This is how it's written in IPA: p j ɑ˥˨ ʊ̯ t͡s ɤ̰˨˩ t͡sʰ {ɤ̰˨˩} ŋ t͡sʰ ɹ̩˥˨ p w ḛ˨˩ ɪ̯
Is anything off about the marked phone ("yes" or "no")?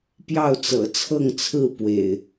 yes